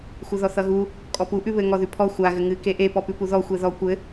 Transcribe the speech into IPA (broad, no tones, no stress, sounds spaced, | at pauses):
xʷ ɘ ð ɔ θ ʌ ɣ u | kʼ ɔ p u ʔ ʉ β ɘ ŋ ɔ ð ʉ pʰ ɔ xʷ a ɣ ɘ ŋ ɨ k e ʔ e p ɔ p ʉ p u ð ɔ xʷ e ð ɔ kʷ ɘ